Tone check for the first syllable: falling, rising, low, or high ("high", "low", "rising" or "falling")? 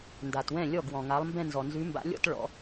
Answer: low